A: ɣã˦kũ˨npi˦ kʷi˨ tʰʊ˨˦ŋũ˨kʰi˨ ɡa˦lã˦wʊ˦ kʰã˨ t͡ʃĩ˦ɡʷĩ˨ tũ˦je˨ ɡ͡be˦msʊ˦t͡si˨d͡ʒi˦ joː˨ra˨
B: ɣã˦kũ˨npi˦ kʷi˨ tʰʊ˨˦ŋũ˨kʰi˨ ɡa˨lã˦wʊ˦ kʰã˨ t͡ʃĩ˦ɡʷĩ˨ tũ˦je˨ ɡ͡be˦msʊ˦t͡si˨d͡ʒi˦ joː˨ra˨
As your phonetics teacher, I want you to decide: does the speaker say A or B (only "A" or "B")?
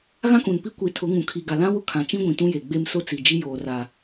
B